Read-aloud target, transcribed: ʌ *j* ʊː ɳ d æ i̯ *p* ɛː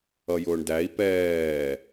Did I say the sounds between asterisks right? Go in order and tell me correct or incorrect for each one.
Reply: correct, correct

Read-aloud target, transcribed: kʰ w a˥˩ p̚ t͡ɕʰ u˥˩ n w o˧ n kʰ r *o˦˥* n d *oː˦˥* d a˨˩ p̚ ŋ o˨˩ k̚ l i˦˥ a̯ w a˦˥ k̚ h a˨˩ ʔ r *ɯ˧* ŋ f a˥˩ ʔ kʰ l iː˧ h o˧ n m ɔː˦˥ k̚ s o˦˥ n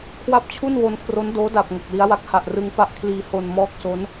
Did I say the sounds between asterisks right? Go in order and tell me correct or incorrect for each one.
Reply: correct, correct, correct

